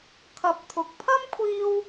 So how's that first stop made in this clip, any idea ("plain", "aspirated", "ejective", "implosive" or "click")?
aspirated